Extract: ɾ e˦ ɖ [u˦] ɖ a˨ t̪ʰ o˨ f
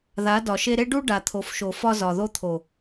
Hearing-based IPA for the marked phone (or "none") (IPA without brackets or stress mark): u˦